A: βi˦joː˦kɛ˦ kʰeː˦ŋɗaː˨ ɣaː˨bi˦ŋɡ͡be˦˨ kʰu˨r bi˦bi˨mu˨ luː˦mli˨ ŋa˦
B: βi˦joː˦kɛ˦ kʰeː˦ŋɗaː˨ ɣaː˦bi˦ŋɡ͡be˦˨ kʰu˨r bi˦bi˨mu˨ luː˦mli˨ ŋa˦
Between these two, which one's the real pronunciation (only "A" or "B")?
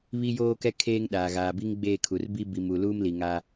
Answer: A